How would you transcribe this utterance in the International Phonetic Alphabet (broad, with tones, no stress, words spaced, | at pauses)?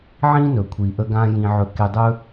ʕĩ˥nɵ˩kʷʰi˩ʔə˧ ɡã˧ jĩ˧ʕɵ˧ ke˧dˤɵ˥